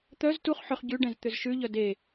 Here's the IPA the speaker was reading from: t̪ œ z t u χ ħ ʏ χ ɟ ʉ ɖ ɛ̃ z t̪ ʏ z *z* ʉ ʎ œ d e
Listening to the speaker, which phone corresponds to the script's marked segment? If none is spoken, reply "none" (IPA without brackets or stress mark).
ʃ